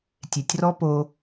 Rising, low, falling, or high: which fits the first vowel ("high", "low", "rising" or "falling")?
low